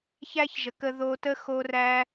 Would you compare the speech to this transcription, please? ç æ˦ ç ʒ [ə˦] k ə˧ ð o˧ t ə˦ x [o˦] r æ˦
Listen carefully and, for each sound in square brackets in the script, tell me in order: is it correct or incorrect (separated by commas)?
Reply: incorrect, correct